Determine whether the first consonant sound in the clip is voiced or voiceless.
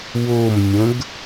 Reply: voiced